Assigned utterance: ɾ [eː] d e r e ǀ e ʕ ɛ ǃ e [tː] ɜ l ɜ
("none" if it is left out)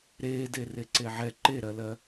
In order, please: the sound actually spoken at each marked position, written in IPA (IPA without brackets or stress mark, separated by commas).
eː, ɾ